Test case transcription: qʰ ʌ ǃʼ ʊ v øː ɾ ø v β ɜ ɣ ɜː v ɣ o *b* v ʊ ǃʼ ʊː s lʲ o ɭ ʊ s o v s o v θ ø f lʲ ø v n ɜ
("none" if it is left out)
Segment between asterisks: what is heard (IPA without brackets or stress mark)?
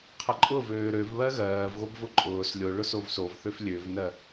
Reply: b